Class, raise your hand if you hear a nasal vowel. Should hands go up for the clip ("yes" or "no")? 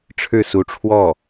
no